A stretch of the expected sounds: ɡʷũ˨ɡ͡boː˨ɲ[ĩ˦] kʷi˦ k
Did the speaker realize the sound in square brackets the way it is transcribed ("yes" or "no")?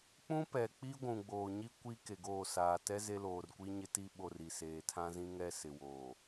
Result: no